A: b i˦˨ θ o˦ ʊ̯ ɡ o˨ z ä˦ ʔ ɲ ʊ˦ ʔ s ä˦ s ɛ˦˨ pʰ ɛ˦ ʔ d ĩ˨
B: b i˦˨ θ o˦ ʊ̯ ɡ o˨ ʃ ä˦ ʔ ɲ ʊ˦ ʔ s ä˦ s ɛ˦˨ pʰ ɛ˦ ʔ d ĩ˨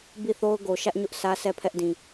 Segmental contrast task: B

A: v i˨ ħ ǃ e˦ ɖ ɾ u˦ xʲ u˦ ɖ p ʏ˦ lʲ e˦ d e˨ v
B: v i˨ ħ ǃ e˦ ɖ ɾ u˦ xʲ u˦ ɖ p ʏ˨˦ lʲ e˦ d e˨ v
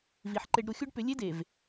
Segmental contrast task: B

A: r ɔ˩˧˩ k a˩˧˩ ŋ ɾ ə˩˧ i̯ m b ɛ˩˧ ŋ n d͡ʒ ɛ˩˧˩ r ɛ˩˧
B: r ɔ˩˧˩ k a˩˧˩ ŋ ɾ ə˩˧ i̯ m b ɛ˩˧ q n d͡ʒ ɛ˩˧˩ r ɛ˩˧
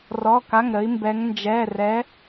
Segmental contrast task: A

